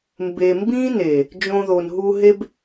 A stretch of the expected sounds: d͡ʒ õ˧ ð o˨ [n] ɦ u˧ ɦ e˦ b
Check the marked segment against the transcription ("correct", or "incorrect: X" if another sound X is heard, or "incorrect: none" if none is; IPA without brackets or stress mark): correct